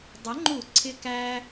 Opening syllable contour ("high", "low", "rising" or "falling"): rising